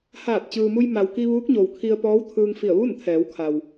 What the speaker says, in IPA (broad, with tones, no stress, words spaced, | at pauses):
haː˧˩t̚ t͡ɕɯː˩mu˧j ma˩wki˧ʋuː˧˥k̚ ɲo˩wkʰi˧ə̯ pɔː˧˥wt̪ʰɯː˧ŋfi˧˩ə̯ ʋu˥˨nt̪ʰɛː˩˧wkʰa˩w